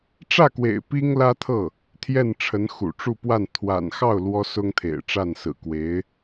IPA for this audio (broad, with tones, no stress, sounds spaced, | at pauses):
ʈ͡ʂ ä˥˩ k w ḛ˨˩ ɪ̯ p i˥ ŋ l ä˥ t̪ʰ ɤ˥˩ | t̪ʰ j ɛ˥˩ n ʈ͡ʂʰ ə˧˥ n x ṵ˨˩ ʈ͡ʂ u˥˧ p w a˥˩ n t̪ʰ w a̰˨˩ n x ɑ˥˩ ʊ̯ l w ɔ˥ s ʊ˥ ŋ t̪ʰ ḛ˨˩ ɪ̯ ʈ͡ʂ a˥˩ n s ɹ̩˨˩ k w e˧˥ ɪ̯